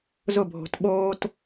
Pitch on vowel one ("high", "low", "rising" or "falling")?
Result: falling